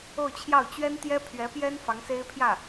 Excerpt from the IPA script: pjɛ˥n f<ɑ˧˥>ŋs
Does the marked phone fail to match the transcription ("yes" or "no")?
no